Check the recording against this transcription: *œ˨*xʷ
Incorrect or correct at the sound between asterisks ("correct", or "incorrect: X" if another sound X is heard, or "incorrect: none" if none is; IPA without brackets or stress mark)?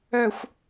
correct